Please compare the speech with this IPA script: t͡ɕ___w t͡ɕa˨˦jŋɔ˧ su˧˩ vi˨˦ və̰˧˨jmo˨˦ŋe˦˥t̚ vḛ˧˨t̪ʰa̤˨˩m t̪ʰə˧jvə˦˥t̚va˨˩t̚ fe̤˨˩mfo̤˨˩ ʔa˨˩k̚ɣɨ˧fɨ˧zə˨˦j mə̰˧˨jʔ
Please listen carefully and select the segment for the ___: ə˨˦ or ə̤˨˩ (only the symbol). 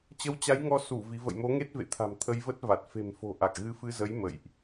ə˨˦